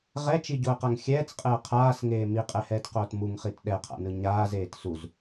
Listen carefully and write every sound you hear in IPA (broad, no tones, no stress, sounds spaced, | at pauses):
ʁ ɛ t͡ʃ i ɟ o ə̯ q a ŋ xʲ ɛː t͡s qʼ ɛ ə̯ qʰ aː s ŋ eː m i qʼ ɛ h ɛː t q oː t m u ŋ χ i t ɗ ɛ qʰ a̰ n ɯ ɲ aː z eː t s u z